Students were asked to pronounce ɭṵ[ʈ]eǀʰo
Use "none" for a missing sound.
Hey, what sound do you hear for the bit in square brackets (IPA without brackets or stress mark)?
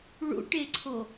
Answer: ʈ